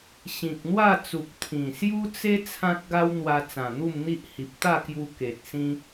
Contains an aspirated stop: yes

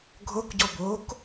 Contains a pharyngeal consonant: no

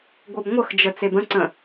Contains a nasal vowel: yes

